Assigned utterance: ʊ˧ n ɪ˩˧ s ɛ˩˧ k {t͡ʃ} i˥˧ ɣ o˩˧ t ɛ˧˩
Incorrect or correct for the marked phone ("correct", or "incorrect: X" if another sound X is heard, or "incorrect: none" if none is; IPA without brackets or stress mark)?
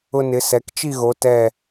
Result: correct